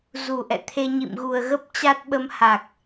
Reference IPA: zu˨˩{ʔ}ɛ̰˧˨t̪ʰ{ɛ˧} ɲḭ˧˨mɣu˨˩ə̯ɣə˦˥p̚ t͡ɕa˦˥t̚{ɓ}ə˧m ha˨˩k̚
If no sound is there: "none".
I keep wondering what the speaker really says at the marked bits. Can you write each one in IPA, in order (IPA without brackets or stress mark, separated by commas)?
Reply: ʔ, e˧, ɓ